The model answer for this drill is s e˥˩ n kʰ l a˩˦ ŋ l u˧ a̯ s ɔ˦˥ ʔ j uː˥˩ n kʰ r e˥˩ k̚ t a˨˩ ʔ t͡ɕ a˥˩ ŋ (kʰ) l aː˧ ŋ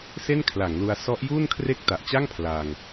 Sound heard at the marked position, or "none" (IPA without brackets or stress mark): pʰ